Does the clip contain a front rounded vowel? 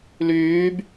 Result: yes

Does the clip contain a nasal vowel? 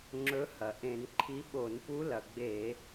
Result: yes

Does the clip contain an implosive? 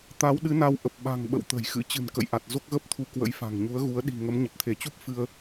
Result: yes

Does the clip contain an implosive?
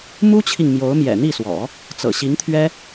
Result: no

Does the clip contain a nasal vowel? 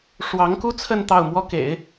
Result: no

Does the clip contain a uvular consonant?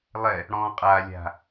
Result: yes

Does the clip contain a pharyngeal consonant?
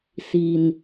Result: no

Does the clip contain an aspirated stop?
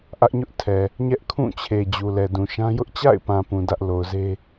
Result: yes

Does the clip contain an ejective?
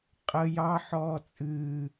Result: yes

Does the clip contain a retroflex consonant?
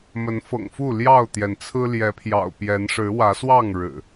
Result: yes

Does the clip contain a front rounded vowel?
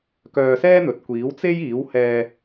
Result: yes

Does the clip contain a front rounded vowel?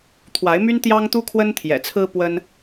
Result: yes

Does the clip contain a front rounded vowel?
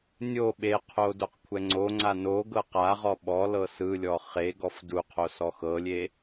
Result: no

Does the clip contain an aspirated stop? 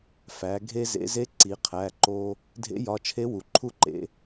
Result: yes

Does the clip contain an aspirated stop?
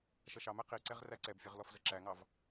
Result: no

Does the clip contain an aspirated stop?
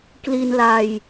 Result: no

